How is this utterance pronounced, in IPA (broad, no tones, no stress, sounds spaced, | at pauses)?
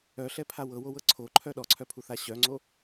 œ ɬ ɛ pʰ a w ɤ w o w ɤ ǀʰ o ǃʰ œ ɗ ɔ ǀʰ œ pʰ u θ a ɕ œ ŋ͡ǀ o